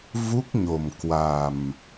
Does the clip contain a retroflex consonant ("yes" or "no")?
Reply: no